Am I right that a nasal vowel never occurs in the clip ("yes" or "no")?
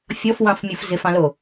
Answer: no